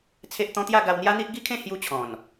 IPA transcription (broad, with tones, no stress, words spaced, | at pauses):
t͡sʰe˦ʔt̪ɔ̃˦ t̪ja˥˧ɡa˧w n̪ja˦n̪i˦ʔ ɡi˦kʰẽ˥˧ hju˧ t͡ɕʰɔ̃˨˩n